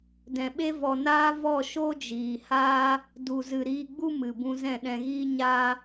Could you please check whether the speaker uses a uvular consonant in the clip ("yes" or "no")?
no